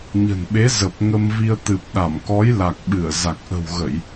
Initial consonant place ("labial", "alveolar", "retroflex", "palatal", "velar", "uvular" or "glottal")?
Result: palatal